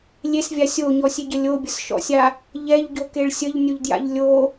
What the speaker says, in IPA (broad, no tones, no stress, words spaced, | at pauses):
lʲesvʲa sʲoɲɔsʲeɟə lʲobʲəsʃɔ̰sʲa | ʎɛʎɟokeɭ sʲəʎnʲoʎdja̰ʎ lʲo